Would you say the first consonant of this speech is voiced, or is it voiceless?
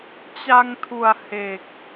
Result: voiceless